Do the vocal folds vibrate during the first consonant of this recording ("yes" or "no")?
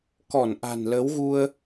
no